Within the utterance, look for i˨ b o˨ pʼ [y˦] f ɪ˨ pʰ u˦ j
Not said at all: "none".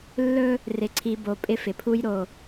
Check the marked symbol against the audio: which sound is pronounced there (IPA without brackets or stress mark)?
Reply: ɪ˦